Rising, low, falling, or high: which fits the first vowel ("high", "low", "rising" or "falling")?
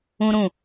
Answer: high